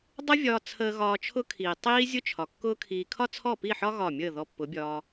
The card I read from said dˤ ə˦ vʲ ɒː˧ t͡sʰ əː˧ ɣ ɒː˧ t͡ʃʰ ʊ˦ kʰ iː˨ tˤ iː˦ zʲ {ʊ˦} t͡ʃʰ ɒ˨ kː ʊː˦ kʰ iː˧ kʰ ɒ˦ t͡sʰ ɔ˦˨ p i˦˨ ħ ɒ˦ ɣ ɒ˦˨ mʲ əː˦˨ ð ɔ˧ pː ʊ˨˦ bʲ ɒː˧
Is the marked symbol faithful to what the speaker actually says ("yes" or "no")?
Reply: yes